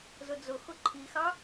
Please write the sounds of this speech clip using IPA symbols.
z ʊ d͡z ʊ x ʊ ǃʰ i x ɑ

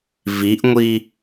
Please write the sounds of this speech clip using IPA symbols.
v i ʔ ŋʷ i

